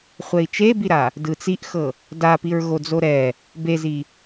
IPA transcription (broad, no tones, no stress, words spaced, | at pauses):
χʷɛi̯t͡ʃebiɾa | dɯt͡siʔxɤ | dapiɹɣod͡zo ɾɛ | bezi